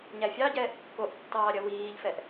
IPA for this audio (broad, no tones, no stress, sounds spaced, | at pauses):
ɲ æ fʲ ɑ ɟ ɛː ʔ kː o ʔ tː ɑː ɾʲ ɐ w iː ʎ f ɛ ʔ